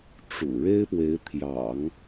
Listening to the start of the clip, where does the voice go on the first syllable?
low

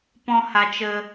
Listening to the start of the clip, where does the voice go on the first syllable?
high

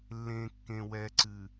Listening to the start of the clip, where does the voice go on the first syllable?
low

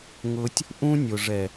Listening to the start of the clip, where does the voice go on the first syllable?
high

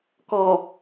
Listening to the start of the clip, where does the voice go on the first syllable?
low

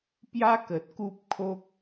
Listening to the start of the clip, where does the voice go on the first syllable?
high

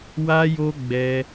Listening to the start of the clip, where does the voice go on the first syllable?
high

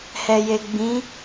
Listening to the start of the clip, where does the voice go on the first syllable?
low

